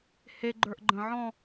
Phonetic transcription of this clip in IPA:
h e ɡ͡ǃ ə˞ ʔ ɡ͡ǃ ə̃ ʕ ɔ̃

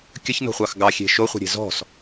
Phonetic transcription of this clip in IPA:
kʲ ə ç n o̤ χʷ ɑ x ɡ ɑ xʲ e̤ ʃ o χʷ e̤ ɾʲ e̤ z ɔ̤ s

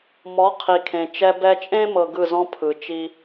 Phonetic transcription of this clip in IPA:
m ɔ˩˥ qʰ i˩ kʰ ẽ˩ t͡ʃ ɛ˧ b ɛ˧ t͡ʃʼ ẽ˥ m ɤ˧ ɡ ɯ˥˩ z ɔ̃˥ pʰ ɯ˩ t͡ʃ i˧

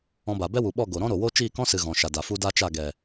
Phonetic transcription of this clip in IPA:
ɔ̃˧ b a˨ b ɛ˦ w u˨ ɓ ɔ˦˨ ɡ o˨ ɾ ɔ̃˦ ɾ o˨ w o˦ t͡ʃ iː˦˨ k ɔ̃˦ s ɨ˨ ɣ ɔ̃˨ ʃ a˨ d a˨ f u˦ d a˦ t͡ʃ a˦˨ ɡ ɛ˨

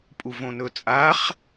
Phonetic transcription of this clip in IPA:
pʼ u v õ n ɵ t͡sʼ a χ

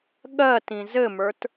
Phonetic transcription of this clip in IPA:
ɠ ɜ t ĩ z ɘ m ə˞ t

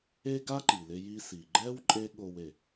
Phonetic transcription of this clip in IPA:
e˥ ɡ a˥ ǃ i˩ l ɪ˧ j i˧ s i˩ ɡ͡ǃ ɛ˥ w ǃʼ e˥ ɠ o˧ w e˩

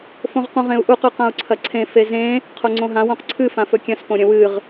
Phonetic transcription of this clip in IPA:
f õ ʁ q ũ ʁ ẽ u̯ ʔ u q ʉ q ã u̯ ǀʰ ɐ ǀʰ ẽ f e z ẽ | qʰ o ŋ͡ǀ õ ɦ ã w õ q ǀʰ ɨ f ã f ɵ kʲ ɐ̃ s p õ ɾʲ ɐ̃ w ɨ ʁ

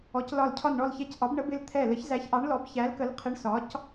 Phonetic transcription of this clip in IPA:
ɔ˩˥ c l ɒ˧˩ l cʰ ɒ˧˩ n ɳ ɔ˧˩ l ç ɛ˧˩ c ʔ ɒ˩˥ b ɳ ə˩˥ b ɪ˧˩ l t̪ʰ ɛ˧˩ l ə˩˥ ç z æ˩˥ ç ʔ ɑ˩˥ ɳ l ɔ˩˥ b ç æ˩˥ l k ə˩˥ l qʰ ɪ˩˥ ɳ s ɒ˩˥ c

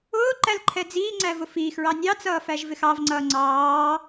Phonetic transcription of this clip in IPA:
ʊː ǃ æ l ǃʰ ɛ d͡z iː ŋ͡ǀ æ v ʊ f iː x ɹ ɑ nʲ ɑ t͡s ʌː f æ ʒ v ɪ x ɑ v ŋ͡ǀ ʌː ŋ͡ǀ ɑː

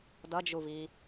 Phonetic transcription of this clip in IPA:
d ʌ d͡ʒ u v i

